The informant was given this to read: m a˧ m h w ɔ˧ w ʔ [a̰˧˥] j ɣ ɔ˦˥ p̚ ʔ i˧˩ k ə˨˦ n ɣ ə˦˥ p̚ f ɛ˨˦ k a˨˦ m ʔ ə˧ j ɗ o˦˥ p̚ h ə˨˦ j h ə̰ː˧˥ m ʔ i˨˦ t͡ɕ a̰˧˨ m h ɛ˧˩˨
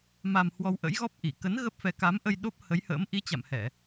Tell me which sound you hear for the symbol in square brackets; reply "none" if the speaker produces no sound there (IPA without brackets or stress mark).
ə̰˧˥